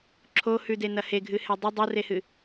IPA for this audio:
ǁʰ o h ʉ d e n ɐ h e ɡʱ ɨ h e dˤ ɵ dˤ o r e h ɨ

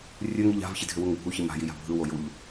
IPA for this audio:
rʲ ɵ ŋ i ʎ a̤ v ç i dʱ ʏ w u ŋ bʱ u ç i m a̤ j i j a̤ bʱ ɯ w o j u ʎ

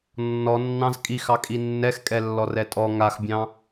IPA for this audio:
nː ɔ nː ɑ̃ z kʼ i x ɑ kʼ i nː ɛ x kʼ ɛ lː ɔ r ɛ tʼ ɔ ŋ a x bʲ ɑ̃

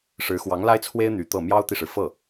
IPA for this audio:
ʂ ɻ̩˧˥ x w ɑ˧˥ ŋ l a˥ ɪ̯ t͡sʰ w e˥ ɪ̯ n̪ y˧˥ t̪ ɤ˥˩ m j ɑ˥ ʊ̯ t̪ i˨ ʂ ɻ̩˩ f ɤ˥˩

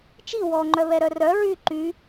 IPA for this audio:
t͡ʃ i w ɔ ŋ͡ǃ œ β ɛ ɾ œ r œ ɹ y ǃ y

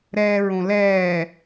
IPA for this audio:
ɾ ɛː ɹ õ l ɛː

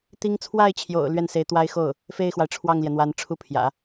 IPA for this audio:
t̪ i˥ ŋ t͡sʰ w a˥˩ ɪ̯ t͡ɕʰ j o̰˨˩ ʊ̯ l ɥ ɛ˥˩ n s e˧˥ ɪ̯ t̪ w a˥ ɪ̯ x o˥˩ ʊ̯ | f e˥˩ ɪ̯ x w a˩ ɪ̯ ʈ͡ʂʰ w ɑ˥˩ ŋ l j ɛ˩ n̪ w a˧˥ n ʈ͡ʂʰ u˥ pʰ j ä̰˨˩˦

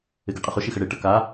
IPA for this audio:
ɪ ɡ e qʼ ə χ o ʃ i x ə ɽ e ʈ ə k a

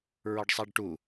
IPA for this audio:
ɹ ɒ ɖ sˤ a ɖ ʈ u

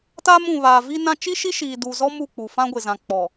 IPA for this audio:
t a˦ m ũ˨ β aː˨ v i˦ n ã˦ t͡ʃ i˦ ʃ i˦ ʃ iː˨ d uː˨ z ɔ˦ m u˦˨ k͡p u˨ f ã˦ ɡʷ ɪ˨ z ã˨ k͡p ɔ˨

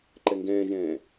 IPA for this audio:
ǃ ɛ ŋ ɡ ɛ̃ː ʒ ɛ̃ː

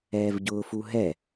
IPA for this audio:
ɛː v ɟ ʊː f u ɦ ɛ

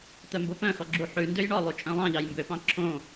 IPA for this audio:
t̪ œ m b o p œ̃ x ɔ ɡ͡ǁ u ħ ʉ n d ø j ɳ ɔ lˠ u t͡ʃʼ œ̃ lˠ ɑ̃ ʎ ɑ j m b ø p ɑ̃ ǁʰ õ

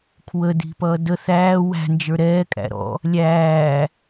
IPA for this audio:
kʰ w ə d i̤ p ʌː d ə θ æː w æ̤ n d͡ʒ ə˞ ɾ ɛː kʼ æ̰ ɾ ɔ̰ | lʲ æː

